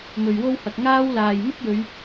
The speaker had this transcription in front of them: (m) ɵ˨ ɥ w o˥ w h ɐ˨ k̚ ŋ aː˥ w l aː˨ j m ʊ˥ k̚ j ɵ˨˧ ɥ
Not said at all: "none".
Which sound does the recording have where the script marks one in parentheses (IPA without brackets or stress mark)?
m